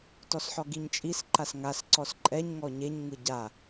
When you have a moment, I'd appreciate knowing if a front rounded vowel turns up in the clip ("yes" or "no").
no